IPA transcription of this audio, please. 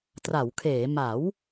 tra˩˦wkʰeː˩˦ ma˩˦w

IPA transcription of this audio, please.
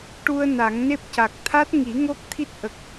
ʈu˧ə̯ na˨˩˦ŋne˦˥p̚ca˨˩k̚ t̪ʰa˦˥t̚ŋi˨˩˦ ŋo˦˥k̚ t̪ʰi˦˥t̚ʔə˨˩k̚

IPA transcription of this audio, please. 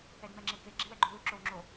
ɛdmɛŋ͡ǁeke ɡ͡ǁewɛɡ͡ǃulu ǁowŋ͡ǁo

